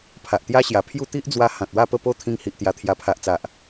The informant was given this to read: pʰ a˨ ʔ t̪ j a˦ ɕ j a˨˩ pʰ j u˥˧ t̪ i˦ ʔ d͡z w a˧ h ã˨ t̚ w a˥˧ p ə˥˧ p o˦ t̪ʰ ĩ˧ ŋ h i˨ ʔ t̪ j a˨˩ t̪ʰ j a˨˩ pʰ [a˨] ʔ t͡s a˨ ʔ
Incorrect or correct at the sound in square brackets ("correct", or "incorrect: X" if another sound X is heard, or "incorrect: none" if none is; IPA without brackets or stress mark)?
correct